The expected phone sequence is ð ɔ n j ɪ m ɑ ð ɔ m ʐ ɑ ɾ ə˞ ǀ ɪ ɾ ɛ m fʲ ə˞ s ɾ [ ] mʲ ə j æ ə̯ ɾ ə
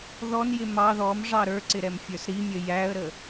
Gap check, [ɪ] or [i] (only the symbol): i